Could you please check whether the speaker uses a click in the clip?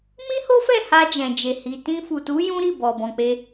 no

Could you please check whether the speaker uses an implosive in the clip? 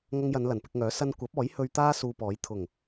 no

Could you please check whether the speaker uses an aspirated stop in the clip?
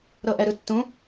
no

